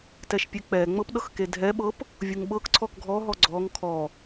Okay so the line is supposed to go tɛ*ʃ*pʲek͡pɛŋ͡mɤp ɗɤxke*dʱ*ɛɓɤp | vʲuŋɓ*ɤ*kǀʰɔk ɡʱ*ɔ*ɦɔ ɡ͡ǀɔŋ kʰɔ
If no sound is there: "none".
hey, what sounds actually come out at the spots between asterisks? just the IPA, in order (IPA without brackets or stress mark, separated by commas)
ʃ, dʱ, ɤ, ɔ